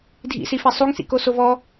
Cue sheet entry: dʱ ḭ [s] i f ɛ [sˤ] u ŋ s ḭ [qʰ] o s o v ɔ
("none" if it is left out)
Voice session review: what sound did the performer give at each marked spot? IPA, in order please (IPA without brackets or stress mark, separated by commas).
s, sˤ, k